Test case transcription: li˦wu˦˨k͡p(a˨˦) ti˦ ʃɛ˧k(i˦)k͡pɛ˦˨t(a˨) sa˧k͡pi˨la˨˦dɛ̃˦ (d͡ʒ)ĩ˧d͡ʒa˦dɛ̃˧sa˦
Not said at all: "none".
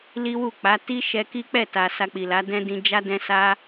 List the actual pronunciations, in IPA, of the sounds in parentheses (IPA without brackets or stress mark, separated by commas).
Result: a˨˦, i˦, a˨, d